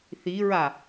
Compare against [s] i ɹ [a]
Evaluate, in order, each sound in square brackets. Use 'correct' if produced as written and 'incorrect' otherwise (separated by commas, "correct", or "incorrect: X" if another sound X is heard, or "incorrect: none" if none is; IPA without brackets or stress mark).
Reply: incorrect: θ, correct